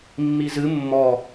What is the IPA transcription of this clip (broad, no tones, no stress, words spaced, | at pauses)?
mːizɨ mːɔ